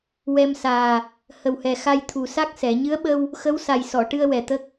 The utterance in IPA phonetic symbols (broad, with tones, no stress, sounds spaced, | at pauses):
w ɛ˧ m s aː˨˩ | h ə˨˩ w h ɛ˨˩ x a˧ j t̪ʰ u˨˩ s a˦˥ k̚ s ɛ˨˩˦ ɲ ɨ˧˥ ə̯ ɓ ə˧ w | x ə˧˥ w s a˨˩ j s ɔ˨˩˨ ʈ ɨ˧ ə̯ w ɛ˨˩ t̪ ə˦˥ k̚